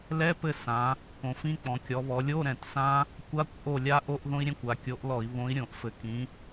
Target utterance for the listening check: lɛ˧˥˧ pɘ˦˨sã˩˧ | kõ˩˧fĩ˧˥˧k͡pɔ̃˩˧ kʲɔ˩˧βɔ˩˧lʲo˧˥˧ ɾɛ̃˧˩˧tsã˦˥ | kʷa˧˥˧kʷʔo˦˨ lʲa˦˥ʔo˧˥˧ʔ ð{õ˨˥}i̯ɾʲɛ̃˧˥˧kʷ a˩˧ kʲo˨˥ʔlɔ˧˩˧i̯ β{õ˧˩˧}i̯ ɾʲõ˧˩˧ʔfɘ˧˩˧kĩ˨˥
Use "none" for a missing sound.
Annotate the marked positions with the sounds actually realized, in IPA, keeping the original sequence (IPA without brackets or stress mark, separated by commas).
õ˦˥, õ˨˥